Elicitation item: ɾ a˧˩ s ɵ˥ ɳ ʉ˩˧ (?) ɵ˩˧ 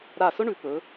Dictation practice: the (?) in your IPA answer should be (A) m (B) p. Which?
B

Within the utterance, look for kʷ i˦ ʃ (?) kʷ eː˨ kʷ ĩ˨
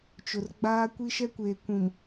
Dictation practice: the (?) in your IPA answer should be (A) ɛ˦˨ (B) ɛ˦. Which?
B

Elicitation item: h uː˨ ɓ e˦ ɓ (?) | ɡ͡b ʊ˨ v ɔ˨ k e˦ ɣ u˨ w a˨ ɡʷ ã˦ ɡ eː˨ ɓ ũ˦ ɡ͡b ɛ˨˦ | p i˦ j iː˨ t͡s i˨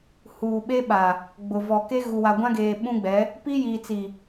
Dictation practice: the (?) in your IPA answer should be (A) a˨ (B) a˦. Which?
A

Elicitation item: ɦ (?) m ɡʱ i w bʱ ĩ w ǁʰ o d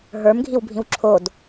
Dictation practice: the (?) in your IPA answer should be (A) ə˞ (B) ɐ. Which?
A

